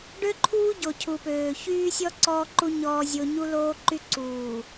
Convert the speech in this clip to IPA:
ɖø˦ǃʰuː˦ ɟo˨cʰu˨pøː˨ çyː˦sʲɔ˦ ǀɔː˦ǃu˦ ɲɔː˦zʲo˦ ɲu˦loː˦ǃy˦ ǀuː˨

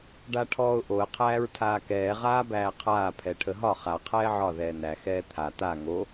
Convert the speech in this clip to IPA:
ɖaʈʰɔːʊ̯ʔoə̯ qʰæːɹtʰaːkɛː ʁaːbæːqʰaː pʰɛʈʰəɦɒ χa qʰɛːʕɒ ðɛːnæ xɛːt̪ʰa t̪a ŋo

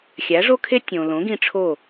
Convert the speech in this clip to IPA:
xʲæ˩˥ʐo˥kʰe˥ tʲõ˩lõ˩˥ɡĩ˧ ʈ͡ʂʰo˥˩

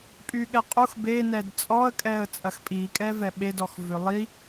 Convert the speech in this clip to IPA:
pʼyɠɛqʼux be nɛdt͡sʼɔə̯kʼɛə̯ t͡sʼɐxpʼikʼɛvɛ ɓedɔxvʏ lˠi

